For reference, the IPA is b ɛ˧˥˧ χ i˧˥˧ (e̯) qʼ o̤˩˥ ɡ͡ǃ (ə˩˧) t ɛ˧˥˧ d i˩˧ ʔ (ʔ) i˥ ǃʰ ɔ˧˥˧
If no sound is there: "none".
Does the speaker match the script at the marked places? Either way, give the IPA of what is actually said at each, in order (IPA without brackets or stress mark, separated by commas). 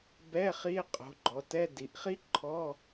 e̯, ɔ˩˧, χ